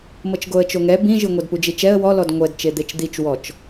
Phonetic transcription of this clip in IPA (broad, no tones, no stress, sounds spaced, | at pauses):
m ɤ t͡ʃ ɡ o ə̯ t͡ʃ o ŋ ɛ b ĩ ʒ ɯ ŋʷ ɛ d p u d͡ʒ i t͡ʃ ɛ ə̯ w ɔ l ɔ d ŋʷ ɛ d t͡ʃ e d̪ e t͡ʃ d̪ i t͡ʃ w ɔ t͡ʃ